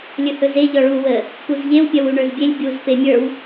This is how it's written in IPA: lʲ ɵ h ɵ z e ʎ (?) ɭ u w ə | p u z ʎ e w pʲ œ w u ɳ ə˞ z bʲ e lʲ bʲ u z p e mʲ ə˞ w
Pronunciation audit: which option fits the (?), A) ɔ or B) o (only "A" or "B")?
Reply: A